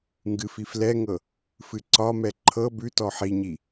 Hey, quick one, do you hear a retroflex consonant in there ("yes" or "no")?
no